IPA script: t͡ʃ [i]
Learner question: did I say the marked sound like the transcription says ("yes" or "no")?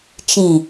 no